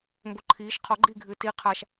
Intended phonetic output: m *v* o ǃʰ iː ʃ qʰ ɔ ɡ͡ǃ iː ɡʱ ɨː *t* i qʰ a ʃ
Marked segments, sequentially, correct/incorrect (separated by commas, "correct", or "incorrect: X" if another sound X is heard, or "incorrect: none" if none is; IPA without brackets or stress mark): incorrect: b, correct